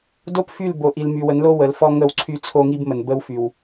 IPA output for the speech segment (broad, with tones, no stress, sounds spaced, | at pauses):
d o˦ p f y˦˨ l b o˨ ʔ i˨ l m y˨ w ə˨˦ n l o˦ w ə˨ l f ɔ˦ ŋ ə˦˨ w ǀʰ y˦ t͡sʰ o˦ ŋ i˦ b m ə˨ n b ə˦ w f y˨ w